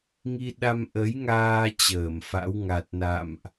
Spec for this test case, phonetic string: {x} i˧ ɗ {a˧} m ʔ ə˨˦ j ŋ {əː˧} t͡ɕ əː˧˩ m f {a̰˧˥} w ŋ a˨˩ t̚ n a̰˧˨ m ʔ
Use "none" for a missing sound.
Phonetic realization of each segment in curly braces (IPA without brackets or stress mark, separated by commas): ŋ, a˧, aː˧, a̰˧˥